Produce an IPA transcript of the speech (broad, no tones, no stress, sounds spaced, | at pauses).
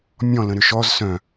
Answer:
mʲ ɔ̃ l ə̃ ɾ ʏ ʃ ɔ z s œ̃